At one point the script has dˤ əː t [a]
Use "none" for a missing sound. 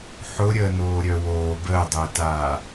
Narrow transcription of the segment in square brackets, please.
aː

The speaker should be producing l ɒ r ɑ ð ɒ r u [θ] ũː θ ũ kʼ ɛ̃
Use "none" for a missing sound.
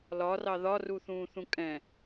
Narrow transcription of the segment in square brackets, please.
θ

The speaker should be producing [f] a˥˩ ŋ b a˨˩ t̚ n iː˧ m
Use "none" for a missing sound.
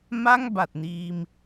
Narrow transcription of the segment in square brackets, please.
m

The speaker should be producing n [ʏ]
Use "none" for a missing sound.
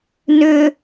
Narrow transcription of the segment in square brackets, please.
ʏ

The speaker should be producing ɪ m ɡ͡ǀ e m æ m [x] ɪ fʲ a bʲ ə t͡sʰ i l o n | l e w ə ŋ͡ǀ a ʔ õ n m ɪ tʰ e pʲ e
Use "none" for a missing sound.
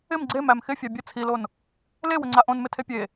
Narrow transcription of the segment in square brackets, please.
x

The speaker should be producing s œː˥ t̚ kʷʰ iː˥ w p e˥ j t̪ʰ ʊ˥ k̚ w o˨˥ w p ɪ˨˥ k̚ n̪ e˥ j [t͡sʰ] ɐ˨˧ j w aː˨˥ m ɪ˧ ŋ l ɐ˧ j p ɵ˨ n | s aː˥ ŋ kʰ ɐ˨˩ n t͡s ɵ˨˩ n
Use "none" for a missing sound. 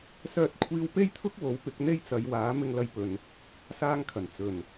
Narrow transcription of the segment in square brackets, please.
t͡s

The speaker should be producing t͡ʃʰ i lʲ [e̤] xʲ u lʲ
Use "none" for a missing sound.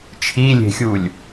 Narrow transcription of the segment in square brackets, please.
e̤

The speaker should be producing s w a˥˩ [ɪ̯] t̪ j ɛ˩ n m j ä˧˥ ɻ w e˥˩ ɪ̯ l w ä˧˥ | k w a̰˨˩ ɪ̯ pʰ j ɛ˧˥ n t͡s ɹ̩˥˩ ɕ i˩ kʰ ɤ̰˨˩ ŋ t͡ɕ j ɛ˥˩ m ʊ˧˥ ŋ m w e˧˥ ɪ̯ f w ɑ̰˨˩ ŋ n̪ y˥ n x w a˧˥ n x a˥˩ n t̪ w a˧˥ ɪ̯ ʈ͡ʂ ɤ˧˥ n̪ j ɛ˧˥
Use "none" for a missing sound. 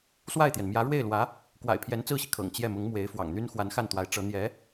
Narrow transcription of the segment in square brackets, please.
ɪ̯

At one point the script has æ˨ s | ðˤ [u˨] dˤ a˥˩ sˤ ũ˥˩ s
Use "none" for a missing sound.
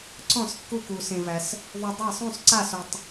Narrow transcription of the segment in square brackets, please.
u˨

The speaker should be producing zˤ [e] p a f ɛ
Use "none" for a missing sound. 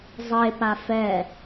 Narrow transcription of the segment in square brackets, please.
e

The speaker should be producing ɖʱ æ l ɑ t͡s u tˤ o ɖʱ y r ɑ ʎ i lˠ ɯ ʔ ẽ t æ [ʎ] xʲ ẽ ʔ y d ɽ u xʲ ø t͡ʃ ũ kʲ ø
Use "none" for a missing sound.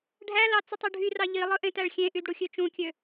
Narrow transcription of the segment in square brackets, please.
ɭ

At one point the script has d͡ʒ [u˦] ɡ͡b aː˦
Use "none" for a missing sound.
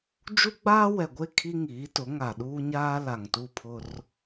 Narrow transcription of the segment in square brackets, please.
u˦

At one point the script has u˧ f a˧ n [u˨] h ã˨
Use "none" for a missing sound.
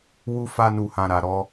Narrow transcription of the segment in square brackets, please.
u˨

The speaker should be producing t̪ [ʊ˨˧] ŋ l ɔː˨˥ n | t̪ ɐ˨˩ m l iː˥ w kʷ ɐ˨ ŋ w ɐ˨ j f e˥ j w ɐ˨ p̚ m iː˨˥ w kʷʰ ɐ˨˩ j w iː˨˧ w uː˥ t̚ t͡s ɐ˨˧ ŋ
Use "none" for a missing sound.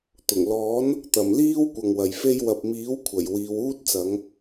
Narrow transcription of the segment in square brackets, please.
ʊ˨˩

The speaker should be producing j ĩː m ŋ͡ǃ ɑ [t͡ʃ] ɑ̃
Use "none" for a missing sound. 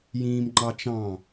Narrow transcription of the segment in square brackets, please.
t͡ʃ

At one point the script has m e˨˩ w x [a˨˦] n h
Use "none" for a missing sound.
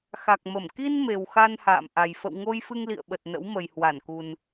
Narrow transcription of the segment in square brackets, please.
a˧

